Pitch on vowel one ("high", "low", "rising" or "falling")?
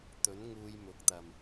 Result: rising